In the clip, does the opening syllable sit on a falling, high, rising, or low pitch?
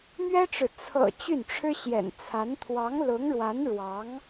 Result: high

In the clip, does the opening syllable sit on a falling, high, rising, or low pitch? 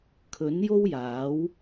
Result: rising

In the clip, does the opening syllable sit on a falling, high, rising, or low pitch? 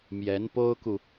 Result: rising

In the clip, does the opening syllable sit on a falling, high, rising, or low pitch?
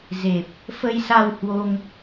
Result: low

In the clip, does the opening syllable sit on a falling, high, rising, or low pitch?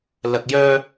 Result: low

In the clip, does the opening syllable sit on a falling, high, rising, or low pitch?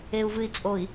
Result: low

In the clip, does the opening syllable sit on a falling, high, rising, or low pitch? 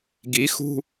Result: rising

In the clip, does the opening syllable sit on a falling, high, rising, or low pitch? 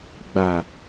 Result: low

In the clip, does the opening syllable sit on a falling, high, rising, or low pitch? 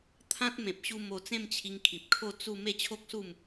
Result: high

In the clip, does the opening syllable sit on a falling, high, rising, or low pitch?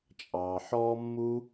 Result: low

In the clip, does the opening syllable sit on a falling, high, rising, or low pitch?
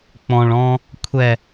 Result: low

